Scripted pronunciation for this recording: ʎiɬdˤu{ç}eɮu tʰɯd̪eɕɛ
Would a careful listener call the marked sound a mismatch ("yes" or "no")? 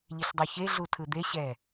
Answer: no